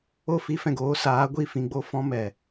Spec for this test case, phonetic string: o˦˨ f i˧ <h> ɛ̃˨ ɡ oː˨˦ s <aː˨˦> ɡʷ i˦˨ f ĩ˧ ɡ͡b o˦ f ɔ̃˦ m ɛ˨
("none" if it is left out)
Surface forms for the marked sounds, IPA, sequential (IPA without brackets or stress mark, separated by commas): f, aː˨˦